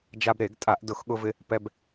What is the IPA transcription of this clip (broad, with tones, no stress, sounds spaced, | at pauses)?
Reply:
d͡ʒ a˧ b ɾ e˧˩˧ ɡ tʼ a˧˩˧ ʔ d ʊ˧˩˧ x ɠ ʊ˧ v ɪ˧ | p ɛ˧ b